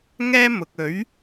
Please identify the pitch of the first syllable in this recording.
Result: high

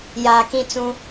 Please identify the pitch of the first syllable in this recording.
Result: low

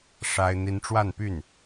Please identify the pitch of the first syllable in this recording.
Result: high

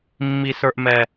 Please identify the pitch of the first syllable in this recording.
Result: low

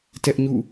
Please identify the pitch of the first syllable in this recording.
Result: high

